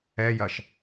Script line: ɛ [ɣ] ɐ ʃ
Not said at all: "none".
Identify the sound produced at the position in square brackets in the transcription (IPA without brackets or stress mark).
j